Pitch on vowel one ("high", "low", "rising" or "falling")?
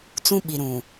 high